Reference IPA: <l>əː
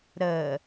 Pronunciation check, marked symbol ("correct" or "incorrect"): incorrect